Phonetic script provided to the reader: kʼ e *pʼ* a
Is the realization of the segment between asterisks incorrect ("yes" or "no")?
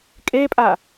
no